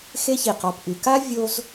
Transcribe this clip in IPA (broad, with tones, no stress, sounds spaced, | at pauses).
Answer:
x e˦ ç i˩ q ɔ˨ p ʔ y˨ k a˥ vʲ o˦ z